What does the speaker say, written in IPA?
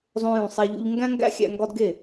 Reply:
zˤ õ˧ j ũ˨ sˤ æ˧ ʎ ṵ˧ ʎ ŋ ɡ æ̃˦ ŋ ɡ æ̰˦ xʲ æ̰˧ ŋ ɡ ɒ˦ d ɡ e˦˨

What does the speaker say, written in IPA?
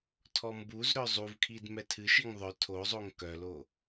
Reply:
tʰ ɔ m b u z ɾ œ zˤ u v kʰ i d m ɛ tʰ ɨ ʃ i ŋ ðˤ œ tʰ o zˤ o ŋ k œ l o

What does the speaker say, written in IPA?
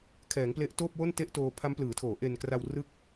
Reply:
kʰ ɛː˩˦ ŋ p l e˦˥ ʔ t oː˥˩ p̚ w o˥˩ n t e˥˩ ʔ t oː˧ pʰ a˦˥ m p l ɯː˩˦ tʰ oː˩˦ ʔ e˧ n k r a˧ w r ɯ˦˥ k̚

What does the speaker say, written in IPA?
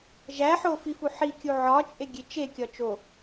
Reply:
ʒ æ ħ o f i f u ħ i kʲ u ʕ ɒ t͡ʃʼ e ɡʲ e t͡ʃ e kʲ ɒ t͡ʃ o

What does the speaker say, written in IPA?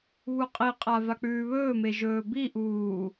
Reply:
β u qʼ i qʼ a v a k͡p ʉː β ɵː m e ʒ ɵː b i ʔ uː

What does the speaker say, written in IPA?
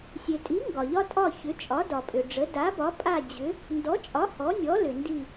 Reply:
sʲ e˨ tʼ i˨˥ ŋ ɡ ɒ˨ ʎ ɒ˥ tʼ ɒ˥˧ ç ʏ˨˥ t͡ʃʼ ɒ˨˥ d ɒ˨ pʼ ʏ˨ ɖ͡ʐ ə˨˥ d a˨˥ b ɒ˨˥ pʼ a˥˧ d͡ʑ ʏ˨˥ | n d ɔ˨˥ t͡ʃʼ ɒ˨˥ h ɔ˨˥ nʲ ɔ˨˥ l ʏ˨ n d i˥˧

